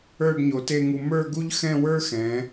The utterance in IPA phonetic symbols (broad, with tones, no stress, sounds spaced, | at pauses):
ə˞˥˧ ɖ ɲ o˩˧ t e˥˧ ŋ u˧ m ə˞˥˧ ɡ u˥ ʎ x ɛ̃˥˧ w ə˞˥ x ɛ̃˩˧